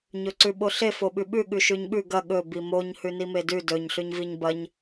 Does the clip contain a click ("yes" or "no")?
yes